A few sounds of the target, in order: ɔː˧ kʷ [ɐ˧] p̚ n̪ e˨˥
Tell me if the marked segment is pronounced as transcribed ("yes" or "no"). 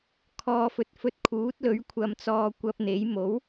yes